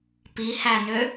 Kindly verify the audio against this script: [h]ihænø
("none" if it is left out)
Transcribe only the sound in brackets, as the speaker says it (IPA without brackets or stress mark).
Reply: p